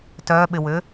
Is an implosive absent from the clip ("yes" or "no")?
no